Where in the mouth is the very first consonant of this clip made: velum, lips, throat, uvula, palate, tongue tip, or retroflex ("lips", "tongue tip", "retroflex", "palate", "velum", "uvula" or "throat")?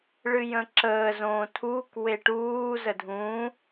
retroflex